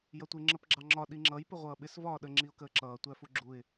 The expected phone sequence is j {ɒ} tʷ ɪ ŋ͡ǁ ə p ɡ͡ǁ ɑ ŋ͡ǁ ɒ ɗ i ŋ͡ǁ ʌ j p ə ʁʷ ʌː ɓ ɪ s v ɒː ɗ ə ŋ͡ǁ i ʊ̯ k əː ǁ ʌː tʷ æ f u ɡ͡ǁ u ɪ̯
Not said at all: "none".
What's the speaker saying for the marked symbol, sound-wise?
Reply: ʌ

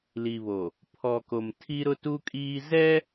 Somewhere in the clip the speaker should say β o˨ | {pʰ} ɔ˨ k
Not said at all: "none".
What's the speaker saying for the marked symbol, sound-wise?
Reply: pʰ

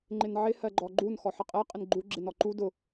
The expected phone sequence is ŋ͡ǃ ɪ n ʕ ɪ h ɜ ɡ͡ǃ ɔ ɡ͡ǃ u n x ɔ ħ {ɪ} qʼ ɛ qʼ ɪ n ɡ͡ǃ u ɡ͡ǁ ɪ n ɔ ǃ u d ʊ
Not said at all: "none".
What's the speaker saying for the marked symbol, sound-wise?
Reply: ə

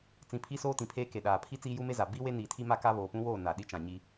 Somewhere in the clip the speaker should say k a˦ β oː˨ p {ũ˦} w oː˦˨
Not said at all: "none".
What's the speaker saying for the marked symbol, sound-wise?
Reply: ũ˦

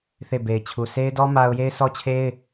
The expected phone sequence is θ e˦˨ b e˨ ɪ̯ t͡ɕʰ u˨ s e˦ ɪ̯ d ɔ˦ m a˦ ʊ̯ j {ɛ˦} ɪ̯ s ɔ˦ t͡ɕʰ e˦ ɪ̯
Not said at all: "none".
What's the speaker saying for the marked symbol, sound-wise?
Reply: e˦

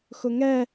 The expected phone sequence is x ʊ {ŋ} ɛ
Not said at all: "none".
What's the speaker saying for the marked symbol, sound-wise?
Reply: ŋ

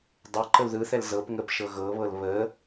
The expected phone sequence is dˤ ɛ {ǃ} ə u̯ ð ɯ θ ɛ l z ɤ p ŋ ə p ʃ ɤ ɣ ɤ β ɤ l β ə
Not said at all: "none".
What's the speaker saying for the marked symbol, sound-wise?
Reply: ǃ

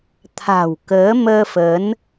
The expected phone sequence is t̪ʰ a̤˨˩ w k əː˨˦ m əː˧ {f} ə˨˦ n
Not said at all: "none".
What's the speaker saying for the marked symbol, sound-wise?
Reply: f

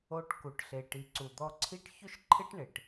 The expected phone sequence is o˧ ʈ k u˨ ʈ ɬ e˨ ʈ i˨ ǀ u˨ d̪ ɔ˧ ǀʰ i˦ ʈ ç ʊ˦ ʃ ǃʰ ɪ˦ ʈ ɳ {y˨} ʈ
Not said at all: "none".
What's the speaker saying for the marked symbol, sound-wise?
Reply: ɪ˨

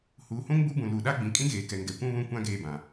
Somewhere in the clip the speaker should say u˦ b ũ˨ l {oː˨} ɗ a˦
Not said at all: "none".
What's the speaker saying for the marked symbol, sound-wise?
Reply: uː˨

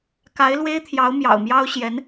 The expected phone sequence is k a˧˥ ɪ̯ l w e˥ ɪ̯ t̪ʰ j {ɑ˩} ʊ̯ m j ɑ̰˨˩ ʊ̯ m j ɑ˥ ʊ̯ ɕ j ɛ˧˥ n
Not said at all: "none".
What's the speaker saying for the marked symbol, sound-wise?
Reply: ɑ˧˥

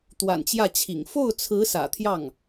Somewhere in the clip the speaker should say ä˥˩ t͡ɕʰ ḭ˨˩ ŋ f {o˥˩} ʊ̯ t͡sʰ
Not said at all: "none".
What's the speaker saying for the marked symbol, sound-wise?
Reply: o˥˩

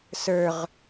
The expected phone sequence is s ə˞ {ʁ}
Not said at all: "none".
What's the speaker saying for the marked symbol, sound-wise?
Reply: ʁ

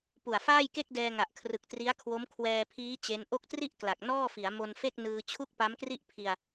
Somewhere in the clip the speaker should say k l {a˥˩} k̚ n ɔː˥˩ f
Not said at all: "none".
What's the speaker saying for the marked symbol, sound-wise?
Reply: a˨˩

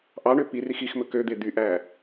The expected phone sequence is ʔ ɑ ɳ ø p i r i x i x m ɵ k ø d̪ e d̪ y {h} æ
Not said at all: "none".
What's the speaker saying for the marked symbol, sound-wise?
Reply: ʔ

